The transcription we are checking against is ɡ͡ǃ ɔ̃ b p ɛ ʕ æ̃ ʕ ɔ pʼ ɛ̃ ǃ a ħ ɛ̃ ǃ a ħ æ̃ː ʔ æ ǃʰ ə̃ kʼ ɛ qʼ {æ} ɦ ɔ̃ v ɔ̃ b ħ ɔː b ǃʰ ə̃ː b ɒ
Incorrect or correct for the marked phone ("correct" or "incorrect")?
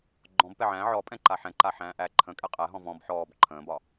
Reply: correct